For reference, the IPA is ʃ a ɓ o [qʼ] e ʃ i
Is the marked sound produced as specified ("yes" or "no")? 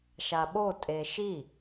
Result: no